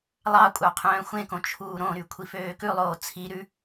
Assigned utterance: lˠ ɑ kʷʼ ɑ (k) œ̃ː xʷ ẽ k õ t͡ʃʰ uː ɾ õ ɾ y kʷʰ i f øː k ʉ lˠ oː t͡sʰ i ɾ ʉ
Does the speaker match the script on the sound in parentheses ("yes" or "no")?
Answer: no